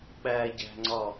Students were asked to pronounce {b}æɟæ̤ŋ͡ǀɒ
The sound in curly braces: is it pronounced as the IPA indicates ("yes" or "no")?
no